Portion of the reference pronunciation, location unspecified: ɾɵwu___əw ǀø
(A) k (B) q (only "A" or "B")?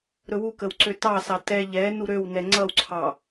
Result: A